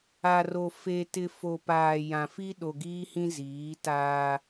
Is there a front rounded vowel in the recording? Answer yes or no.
no